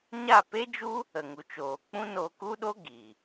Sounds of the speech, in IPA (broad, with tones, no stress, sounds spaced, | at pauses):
ɲ a˦˨ p e˦ d͡ʒ u˦ | ə˨ ŋ u˨ t͡ʃ oː˨ k͡p ũ˦ n o˧ k u˦ ɗ o˦ ɡ i˨